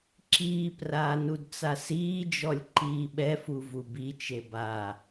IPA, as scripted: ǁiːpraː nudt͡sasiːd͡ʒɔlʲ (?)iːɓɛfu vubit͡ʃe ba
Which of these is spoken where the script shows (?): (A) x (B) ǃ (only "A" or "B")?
B